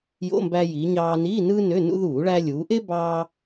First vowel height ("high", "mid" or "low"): mid